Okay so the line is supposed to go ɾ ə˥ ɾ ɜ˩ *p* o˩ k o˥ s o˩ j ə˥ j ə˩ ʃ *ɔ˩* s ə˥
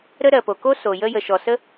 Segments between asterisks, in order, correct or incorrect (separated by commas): correct, correct